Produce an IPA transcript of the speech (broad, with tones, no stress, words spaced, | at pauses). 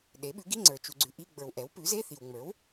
ɗe˩˥ɓʉ˩˥ɡi˧˥˧ŋ͡ǀə˞˨ t͡ʃu˨ɡ͡ǀʉ˨ʔi˧˥˧ ɡ͡bə˞˨wʔɛ˩˥w pʉ˩˥ze˧˥˧θi˨w ŋ͡mə˞˩˥w